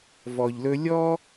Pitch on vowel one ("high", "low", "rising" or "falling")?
low